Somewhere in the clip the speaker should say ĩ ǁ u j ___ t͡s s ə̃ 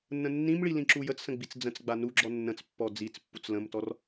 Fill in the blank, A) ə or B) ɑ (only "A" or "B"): A